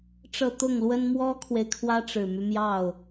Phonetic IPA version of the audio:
ʈ͡ʂ ɤ˥˧ t̪ ʊ˥˩ ŋ l w ə˥ n m w ɔ˥ kʰ w e˨ ɪ̯ kʰ w ä˥ ʈ͡ʂ ɻ̩˨˩ m y˦ m j ɑ˥˩ ʊ̯

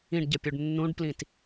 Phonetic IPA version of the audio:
ĩ ɖ ɟ ə pʲ u ɖ nː ũ ɖ p l ĩ t

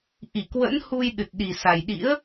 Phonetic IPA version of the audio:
ʔ i˧˩ k w ə̰˧˥ n h u˧ j ɗ ɨ˨˩ t̚ ɗ i˨˩ s a˨˩ j ɗ ḭ˧˥ ə̯

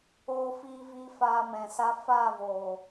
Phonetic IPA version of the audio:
oː˧ f iː˧ v iː˧ f aː˧ m ɛ̃˨ s a˦ f aː˦˨ v oː˨

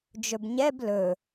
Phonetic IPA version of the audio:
d͡ʒ ɵ b ɲ ɛ b l ɵ

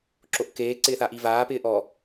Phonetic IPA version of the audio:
ǁ o ʔ k eː ǀ ɪː θ a ʔ i v aː p ɪː ʔ ɔ

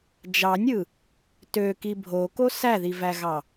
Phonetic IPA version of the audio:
d͡ʒ ɑ nʲ ɯ | t ø k i bʱ o k o s æ ð i v æ ɣ ɑ

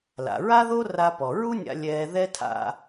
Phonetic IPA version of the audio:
l a̰˩ ɹ a˥ ð o˥ r a˧ p ɔ˩ ɹ u˥ nʲ a̰˧ lʲ ɛː˧ ð ɛ˥ tʰ a̰˧

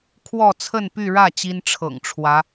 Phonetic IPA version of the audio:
kʰ w ɔ˥˧ t͡sʰ ə˥˧ n p y˥˧ ɻ ä˥˩ t͡ɕ i˥ n ʈ͡ʂʰ ɤ̰˨˩ ŋ ʈ͡ʂʰ w ä˧˥

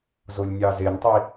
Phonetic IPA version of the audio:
z o lʲ nʲ ɑ z e n tˤ i

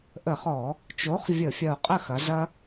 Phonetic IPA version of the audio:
ʔ ə˧˩˧ χ ɔ˧˩˧ | t͡ʃ o˨˥ χ vʲ ə˧˩˧ fʲ ɐ˧˩ u̯ qʼ ə˥˩ x ɐ˨˥ z ɐ˦

